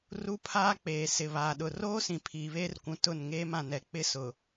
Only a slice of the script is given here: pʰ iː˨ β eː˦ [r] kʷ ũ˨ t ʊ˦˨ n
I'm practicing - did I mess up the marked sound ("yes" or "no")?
no